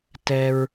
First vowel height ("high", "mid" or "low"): mid